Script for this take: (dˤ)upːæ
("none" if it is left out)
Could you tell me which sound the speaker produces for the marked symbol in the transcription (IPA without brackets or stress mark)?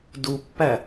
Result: d